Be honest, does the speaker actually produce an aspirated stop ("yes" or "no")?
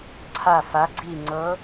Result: yes